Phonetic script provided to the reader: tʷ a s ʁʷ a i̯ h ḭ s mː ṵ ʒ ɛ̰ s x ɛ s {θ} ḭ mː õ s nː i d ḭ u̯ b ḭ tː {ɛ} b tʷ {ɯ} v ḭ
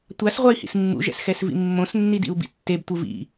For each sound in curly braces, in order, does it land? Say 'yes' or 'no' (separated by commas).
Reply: no, no, yes